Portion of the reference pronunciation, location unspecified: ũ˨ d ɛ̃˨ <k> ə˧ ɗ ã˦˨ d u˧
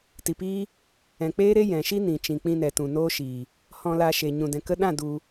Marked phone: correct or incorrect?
correct